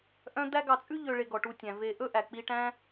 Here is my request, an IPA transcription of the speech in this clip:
ʔ œ̃˦ d̪ æ˦ ɡ ɑ˨ t͡sʼ ʉ˥ ʎ ø˨ ɭ e˨ ɡ ɔ˩ ʈ u˨ tʲ æ̃˩ v e˨ ʔ ɵ˥ ʔ æ˩ k͡p i˨ ʈ æ̃˦

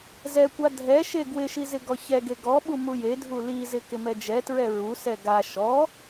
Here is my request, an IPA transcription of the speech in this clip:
z ɛ kʷ a dʱ ɛ ʃ e ɡ w ɪ ʃ i z ɪ ɡ ɔ ç ɛ ɡ e ɡ ɔ ɓ u m u j e dʱ u l i z ɪ k ɪ m ɛ d͡ʒ ɛ t ɹ ɛ ɹ u s ɛ ɡ a ʃ ɔ

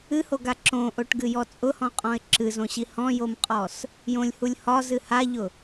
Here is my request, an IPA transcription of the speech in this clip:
ɨ h o ɡ a ǁ õ ʔ o ʈ ɡ ɨ j ɔ t͡sʼ ʊ h ɔ̃ qʼ ɔ̃ ɪ̯ ǁ ɨ z õ ɕ i h ɔ̃ j o m qʼ ɔ s | j õ lʲ h u lʲ h ɒ z ɨ h a ʎ ʊ

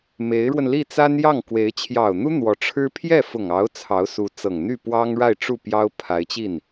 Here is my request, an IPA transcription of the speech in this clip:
m e˧˥ ɪ̯ ɻ w ə˧ n l i˥˩ t͡s a˥ n j ɑ˥˩ ŋ k w e˧˥ ɪ̯ t͡ɕʰ j ɑ˨˩ ʊ̯ n̪ u˥ n̪ w ɔ˧˥ ʈ͡ʂʰ ɻ̩˥ pʰ j ɛ˥˩ f ʊ˨˩ ŋ ɑ˧˥ ʊ̯ t͡sʰ ɑ˧˥ ʊ̯ s u˧˥ t͡s ɤ˨˩ ŋ n̪ y˥˩ p w ɑ˥ ŋ ɻ a˥˧ ɪ̯ ʈ͡ʂ u˥˩ p j ɑ˥ ʊ̯ pʰ a˧˥ ɪ̯ t͡ɕ i˥˩ n

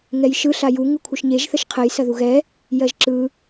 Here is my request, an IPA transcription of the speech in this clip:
ŋ ɛ j ʃ ɯ ɬ a j u ŋ ɯ kʷʰ ɯ ʃ ɲ e ʒ θ ə ʃ qʰ ɜ j s ɐ ð u ɣ ɛ | j ɜ ʒ ǁ ɯ

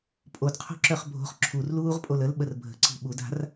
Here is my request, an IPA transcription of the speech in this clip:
pʼ o d qʰ o̤ ǁ œ χ bʱ o̤ χ ǁʰ u r l uː ʁ pʼ o l ə l ɓ ə r bʱ ə̤ ǀ i̤ ɓ u d a̤ r

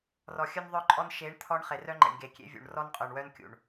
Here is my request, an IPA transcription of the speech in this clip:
r ɔ˨ xʲ œ˦ n ðˤ œ˦ ǃʼ ɔ˦ n ʃ e˨˦ ɳ t̪ʰ ɔ˦ ɳ χ e˨ r œ˦ ŋ͡ǃ ḛ˨ ɳ ɡ e˨ kʲ ḛ˦ vʲ ṵ˨ ɳ r ɔ˦ n qʼ œ˨ ɳ w œ˦ n kʲ ṵ˨ ɳ

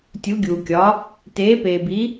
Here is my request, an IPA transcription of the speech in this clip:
tʲ u˩˥ ɡʲ uː˩ kʲ ɒ˩˥ | t eː˩˥ p eː˩ b i˩˥

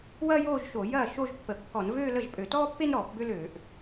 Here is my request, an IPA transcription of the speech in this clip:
w ɐː˥ j oː˥˧ ʒ ʃ o˧˩˧ j ɐː˥˩ ʃ o˥˧ ʒ pː ə˧˩˧ kː ɔ˧˩˧ n v øː˥˧ l ə˥˩ ʒ pʼ ø˧˩˧ t ɔː˥ pː e˥ n ɾ ɔː˧˩˧ p b ø˥ l øː˧˩˧ ʔ

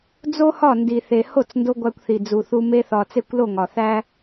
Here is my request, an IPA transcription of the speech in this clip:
d͡z o˦ h ɒ˦˨ n d i˨ θ e˨ h o˦˨ t͡s n d o˧ ɡʷ æ˧ kʷ θ i˨ d͡z u˨ θ u˧ m e˧ θ ɒ˨ t͡s e˦˨ kʷ l o˦˨ ŋ ɒ˨ θ æ˦

